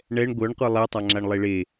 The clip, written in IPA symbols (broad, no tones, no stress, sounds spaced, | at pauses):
ɳ ɛ ɳ ɡʷ œ ɳ qʷ e lˠ e tˤ a ŋ͡ǁ a ɳ lˠ e ɭ e